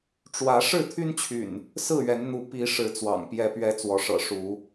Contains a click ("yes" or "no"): no